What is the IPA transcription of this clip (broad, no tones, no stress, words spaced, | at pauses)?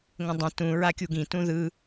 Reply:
ŋə̃dˤə̃ tũ ɹakʲuɡĩ tũðɯ